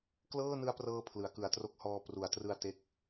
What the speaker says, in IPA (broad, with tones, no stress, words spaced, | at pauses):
klɤː˥˩nɯ˦˥a̯prɤː˧ pʰlɯ˩˦a̯kɯ˨˩a̯tro˦˥k̚hɔː˧ pru˩˦a̯trɯ˧a̯ te˥˩k̚